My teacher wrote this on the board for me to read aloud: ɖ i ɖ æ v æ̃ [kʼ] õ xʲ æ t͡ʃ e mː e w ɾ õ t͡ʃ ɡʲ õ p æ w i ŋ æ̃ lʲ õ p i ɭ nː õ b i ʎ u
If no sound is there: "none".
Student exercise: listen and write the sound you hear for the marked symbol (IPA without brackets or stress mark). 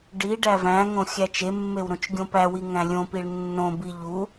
ŋ